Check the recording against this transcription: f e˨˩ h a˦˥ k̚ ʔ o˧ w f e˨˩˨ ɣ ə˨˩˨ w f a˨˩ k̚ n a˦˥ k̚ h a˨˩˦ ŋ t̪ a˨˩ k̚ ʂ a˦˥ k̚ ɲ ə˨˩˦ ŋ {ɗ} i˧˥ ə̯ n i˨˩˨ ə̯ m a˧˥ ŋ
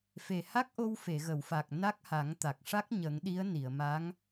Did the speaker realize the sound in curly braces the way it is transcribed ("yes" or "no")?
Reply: yes